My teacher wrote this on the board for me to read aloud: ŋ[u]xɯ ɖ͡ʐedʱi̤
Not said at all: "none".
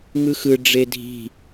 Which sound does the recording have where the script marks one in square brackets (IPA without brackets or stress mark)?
ɯ